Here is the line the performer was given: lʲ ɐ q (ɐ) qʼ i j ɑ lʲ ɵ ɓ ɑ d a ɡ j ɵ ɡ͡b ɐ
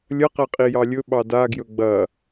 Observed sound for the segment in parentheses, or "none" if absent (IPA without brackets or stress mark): æ